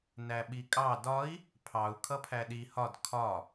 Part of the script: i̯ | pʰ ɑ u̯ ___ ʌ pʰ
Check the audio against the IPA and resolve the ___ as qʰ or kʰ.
kʰ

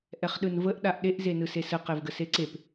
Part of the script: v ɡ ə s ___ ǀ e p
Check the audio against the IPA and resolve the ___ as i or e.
e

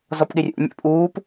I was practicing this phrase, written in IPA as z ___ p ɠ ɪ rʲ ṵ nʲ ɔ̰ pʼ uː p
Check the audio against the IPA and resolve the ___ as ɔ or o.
ɔ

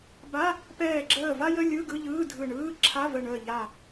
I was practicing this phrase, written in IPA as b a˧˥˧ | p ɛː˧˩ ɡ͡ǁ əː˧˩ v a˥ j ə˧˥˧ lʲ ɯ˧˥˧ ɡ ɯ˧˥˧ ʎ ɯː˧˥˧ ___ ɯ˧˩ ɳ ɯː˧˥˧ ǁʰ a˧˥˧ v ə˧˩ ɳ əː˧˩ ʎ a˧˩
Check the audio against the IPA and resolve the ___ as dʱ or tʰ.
dʱ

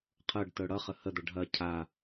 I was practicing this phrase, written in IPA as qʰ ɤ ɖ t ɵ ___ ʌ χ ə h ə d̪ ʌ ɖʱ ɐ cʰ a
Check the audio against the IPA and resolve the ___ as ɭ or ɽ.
ɽ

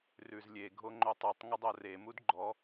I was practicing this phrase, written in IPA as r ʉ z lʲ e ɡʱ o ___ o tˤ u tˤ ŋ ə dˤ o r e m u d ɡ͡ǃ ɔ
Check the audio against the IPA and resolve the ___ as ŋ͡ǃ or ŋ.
ŋ͡ǃ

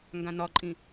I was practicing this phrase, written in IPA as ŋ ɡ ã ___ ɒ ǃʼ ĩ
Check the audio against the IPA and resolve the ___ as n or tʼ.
n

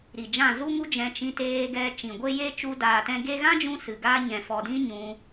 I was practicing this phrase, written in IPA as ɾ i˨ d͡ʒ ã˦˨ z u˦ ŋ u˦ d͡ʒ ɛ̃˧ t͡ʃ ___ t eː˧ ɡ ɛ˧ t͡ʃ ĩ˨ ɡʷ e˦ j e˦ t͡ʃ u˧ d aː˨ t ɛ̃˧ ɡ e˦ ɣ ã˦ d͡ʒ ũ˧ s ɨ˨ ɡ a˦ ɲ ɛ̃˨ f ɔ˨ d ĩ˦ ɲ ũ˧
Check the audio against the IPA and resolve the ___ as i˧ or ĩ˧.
ĩ˧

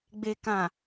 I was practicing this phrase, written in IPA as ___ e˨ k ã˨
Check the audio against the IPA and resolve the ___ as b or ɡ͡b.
ɡ͡b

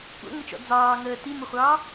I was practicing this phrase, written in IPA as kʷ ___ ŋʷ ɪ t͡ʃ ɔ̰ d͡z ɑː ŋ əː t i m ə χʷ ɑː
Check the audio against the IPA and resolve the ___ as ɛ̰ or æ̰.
ɛ̰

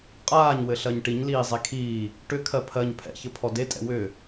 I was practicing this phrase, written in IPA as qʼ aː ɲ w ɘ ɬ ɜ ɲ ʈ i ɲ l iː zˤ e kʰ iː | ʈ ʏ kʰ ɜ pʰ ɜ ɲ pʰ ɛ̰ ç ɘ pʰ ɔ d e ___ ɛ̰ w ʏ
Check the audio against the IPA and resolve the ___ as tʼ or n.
tʼ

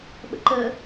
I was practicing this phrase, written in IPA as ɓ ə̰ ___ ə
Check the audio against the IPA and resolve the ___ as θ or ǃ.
ǃ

